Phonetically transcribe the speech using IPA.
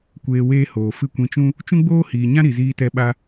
kʷeː˧weː˦hoː˨ fɨ˦˨kʷĩ˧t͡ʃũ˦ | t͡ʃũ˦ɡ͡boː˦hiː˨ɲã˦ ɾi˨ziː˧tɛ˧ɓa˧

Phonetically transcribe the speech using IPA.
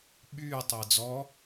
ɓyː tˤəːd͡zɔ

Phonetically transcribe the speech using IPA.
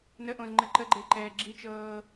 nəʔõzŋ͡ǃɘ ǃəɡ͡ǃeǃɛː ɡ͡ǁit͡ʃɤː

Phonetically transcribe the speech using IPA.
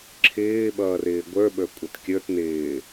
ǁʰɪːɓʌːrɪː ɡʷə˞ɓə˞kʷʼət kʲə˞t nɪː

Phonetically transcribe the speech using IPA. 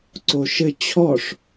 ǀoʃɘ t͡ɕʰɔʂ

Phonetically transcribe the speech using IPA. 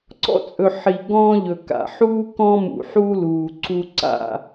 ǀɔ̰˦t͡sʼɵ˨ ħi˨ ɡɔ̃ː˦ ʎɵ˨ka̰˨ ħuː˦ kɔ̃˦mṵ˨ħuː˦ luː˨ ǀu˦ǀa̰˦˨

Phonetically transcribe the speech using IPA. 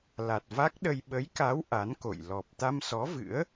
la˨˩t̚va˦˥k̚ɗə˧j ɓə˨˦jka˨˦w ʔa˨˦nko̰˧˨j lɔ˨˩p̚ t̪a˧msɔ˨˦vɨ̰˧˥ə̯

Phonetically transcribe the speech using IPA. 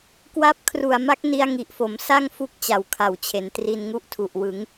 kwa˦˥p̚ kʰru˨˩a̯ma˦˥k̚ ni˦˥a̯ŋi˨˩ʔfo˩˦m sa˥˩ŋfu˦˥k̚ t͡ɕa˨˩wkʰa˨˩wt͡ɕʰe˩˦n tri˧nŋu˦˥ʔtʰu˨˩ʔwɯ˩˦ŋ

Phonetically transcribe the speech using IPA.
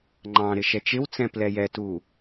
ŋ͡ǃɑ̃ ɾɪʃɛt͡ʃɪwt͡sɛ̃ plɛjɛtu

